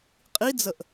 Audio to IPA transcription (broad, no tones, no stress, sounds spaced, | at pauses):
qʼ i d͡z ə ʔ